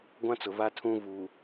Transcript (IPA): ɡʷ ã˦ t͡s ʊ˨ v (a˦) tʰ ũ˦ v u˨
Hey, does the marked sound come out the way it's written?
yes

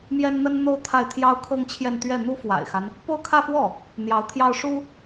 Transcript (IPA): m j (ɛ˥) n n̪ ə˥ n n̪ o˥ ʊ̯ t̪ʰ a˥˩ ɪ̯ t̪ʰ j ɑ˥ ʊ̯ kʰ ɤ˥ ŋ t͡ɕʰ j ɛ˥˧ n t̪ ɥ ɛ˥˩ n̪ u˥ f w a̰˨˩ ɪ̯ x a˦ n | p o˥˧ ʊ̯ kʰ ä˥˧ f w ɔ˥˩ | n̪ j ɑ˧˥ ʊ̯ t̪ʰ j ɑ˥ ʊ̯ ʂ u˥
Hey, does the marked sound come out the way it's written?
yes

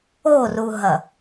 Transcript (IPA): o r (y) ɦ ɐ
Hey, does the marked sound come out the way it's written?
no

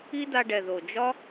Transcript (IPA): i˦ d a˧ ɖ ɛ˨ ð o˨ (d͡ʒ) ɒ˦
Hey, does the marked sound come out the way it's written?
yes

